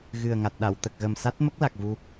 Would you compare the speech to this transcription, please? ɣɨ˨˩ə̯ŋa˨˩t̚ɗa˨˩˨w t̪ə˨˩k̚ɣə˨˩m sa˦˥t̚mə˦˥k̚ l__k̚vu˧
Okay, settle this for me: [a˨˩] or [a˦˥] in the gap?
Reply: a˨˩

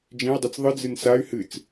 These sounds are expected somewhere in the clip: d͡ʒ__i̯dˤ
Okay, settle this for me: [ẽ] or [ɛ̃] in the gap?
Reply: ẽ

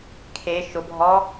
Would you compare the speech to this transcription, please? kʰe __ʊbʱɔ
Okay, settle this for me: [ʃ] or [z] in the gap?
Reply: ʃ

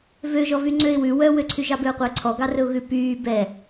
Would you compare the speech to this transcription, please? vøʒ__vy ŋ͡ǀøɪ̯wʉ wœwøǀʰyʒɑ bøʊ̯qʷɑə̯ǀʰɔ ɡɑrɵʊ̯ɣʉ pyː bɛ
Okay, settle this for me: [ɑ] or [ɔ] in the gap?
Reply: ɔ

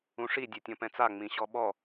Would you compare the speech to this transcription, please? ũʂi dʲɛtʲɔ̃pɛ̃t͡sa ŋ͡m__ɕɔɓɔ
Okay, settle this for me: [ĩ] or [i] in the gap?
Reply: ĩ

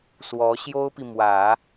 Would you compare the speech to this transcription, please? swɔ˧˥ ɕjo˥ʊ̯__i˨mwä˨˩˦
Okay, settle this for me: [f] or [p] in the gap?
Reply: p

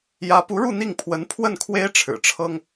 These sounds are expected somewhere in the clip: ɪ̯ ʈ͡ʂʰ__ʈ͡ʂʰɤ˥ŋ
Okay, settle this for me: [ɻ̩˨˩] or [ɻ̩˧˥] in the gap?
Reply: ɻ̩˨˩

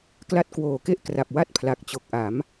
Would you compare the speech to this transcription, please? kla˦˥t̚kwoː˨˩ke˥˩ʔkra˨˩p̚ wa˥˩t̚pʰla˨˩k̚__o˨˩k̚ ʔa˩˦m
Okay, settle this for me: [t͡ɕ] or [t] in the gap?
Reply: t͡ɕ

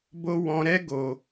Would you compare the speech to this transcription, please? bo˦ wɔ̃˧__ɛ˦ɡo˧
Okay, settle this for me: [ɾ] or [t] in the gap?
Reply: ɾ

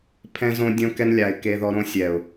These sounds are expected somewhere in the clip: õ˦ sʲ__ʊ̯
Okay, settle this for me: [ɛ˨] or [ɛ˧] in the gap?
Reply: ɛ˨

